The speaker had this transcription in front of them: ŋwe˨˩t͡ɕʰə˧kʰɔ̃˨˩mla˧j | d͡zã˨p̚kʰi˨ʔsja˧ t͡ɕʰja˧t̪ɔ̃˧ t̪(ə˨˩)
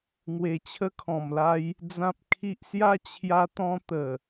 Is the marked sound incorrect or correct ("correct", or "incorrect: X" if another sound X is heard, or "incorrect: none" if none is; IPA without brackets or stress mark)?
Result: correct